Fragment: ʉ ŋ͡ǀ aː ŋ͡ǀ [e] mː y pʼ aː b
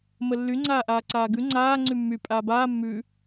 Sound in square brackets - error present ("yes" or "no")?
yes